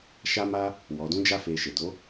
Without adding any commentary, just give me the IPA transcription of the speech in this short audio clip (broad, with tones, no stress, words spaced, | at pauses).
ʃa˦ma˦ | wɔ˨dũ˨˦d͡ʒa˧fe˨ ʃe˨do˨˦